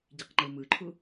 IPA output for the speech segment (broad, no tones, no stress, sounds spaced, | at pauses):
ɟ i q ŋ͡ǃ ɯ m ɯ ǃʰ u